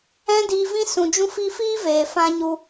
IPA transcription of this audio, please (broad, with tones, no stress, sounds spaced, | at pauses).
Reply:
ɛ̃˦ d iː˧ v ĩ˦ s ũ˨ d͡ʒ ũ˧ f i˧ f iː˦ v eː˨ f ã˧ ɲ u˧